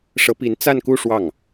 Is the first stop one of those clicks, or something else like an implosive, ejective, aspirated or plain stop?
plain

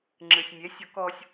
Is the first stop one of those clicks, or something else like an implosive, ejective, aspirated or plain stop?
click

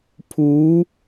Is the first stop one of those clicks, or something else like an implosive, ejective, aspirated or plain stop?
aspirated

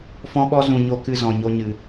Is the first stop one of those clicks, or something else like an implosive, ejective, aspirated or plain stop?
implosive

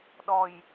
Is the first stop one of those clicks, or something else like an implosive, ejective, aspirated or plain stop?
implosive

